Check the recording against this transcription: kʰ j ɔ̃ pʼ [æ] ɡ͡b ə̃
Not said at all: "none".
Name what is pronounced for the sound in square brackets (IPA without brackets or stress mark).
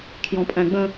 æ̃